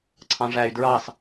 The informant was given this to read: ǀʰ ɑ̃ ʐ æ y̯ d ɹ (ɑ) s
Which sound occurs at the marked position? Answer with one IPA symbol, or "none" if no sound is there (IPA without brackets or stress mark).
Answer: ɑ